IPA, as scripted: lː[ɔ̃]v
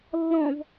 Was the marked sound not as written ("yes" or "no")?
no